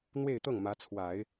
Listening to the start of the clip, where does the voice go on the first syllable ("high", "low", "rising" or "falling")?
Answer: falling